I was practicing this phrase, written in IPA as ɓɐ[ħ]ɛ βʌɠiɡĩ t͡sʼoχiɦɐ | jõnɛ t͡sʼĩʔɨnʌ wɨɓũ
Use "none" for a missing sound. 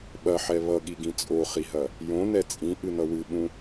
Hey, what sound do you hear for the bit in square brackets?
ħ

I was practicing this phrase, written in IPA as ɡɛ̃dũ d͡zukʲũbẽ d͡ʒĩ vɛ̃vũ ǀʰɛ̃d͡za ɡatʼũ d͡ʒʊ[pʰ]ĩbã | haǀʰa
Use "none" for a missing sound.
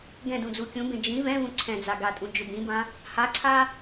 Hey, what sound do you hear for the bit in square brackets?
b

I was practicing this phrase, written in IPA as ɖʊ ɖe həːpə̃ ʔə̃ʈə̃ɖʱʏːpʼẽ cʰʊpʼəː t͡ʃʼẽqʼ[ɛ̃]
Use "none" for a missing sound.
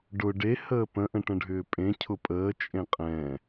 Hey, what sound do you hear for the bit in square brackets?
ɛ̃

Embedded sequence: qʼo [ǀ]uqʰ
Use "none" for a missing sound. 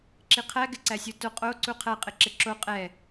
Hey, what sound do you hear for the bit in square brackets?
ǀ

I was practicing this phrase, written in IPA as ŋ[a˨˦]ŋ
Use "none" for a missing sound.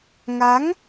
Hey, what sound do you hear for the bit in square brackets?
a˨˦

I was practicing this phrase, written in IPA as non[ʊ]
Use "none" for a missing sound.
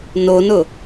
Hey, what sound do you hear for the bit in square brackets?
ʊ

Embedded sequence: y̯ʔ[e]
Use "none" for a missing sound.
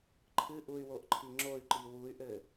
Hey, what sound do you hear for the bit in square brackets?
ɘ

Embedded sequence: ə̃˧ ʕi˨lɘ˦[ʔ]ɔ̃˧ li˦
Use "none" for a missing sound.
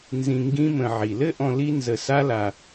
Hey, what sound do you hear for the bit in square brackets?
ʔ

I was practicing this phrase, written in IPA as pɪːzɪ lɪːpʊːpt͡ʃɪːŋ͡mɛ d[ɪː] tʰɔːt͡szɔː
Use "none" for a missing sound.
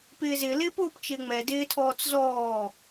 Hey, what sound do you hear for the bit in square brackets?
ɪː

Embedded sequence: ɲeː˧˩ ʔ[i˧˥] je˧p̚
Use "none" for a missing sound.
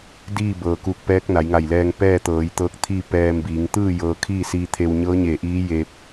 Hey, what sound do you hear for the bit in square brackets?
iː˧˥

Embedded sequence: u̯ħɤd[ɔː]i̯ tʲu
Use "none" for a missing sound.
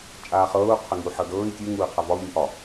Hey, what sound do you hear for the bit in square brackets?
ɤː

